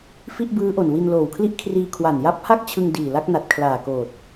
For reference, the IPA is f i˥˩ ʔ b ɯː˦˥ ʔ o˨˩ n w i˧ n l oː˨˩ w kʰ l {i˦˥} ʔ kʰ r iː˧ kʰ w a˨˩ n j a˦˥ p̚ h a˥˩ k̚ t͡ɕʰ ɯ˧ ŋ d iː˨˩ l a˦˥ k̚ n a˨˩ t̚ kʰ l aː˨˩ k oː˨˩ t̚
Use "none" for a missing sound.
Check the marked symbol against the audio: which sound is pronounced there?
i˦˥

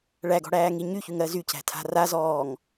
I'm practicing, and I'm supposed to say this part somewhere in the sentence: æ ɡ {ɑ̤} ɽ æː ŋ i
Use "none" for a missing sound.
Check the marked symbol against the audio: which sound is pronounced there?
ɔ̤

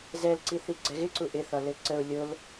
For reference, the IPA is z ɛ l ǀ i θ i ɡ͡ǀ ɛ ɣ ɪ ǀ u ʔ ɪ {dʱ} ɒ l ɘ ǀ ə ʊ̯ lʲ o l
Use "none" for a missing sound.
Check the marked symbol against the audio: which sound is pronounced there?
θ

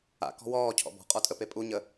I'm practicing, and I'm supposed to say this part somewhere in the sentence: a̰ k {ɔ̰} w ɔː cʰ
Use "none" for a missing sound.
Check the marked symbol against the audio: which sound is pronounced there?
ɔ̤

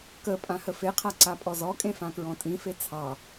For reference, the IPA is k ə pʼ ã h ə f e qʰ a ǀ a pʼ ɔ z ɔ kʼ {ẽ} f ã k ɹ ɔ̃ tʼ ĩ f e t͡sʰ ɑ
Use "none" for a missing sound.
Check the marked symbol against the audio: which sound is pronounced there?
ẽ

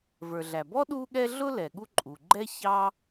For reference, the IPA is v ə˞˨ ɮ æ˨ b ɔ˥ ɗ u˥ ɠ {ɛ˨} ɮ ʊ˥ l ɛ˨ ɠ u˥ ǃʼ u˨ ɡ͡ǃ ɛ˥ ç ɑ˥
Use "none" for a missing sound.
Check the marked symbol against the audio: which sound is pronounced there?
ɛ˥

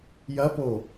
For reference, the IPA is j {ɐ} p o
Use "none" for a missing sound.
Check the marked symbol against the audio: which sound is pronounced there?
ɐ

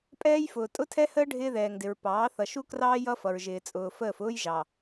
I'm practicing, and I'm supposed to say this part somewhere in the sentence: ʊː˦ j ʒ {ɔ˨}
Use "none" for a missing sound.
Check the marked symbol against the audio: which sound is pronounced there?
ɑ˨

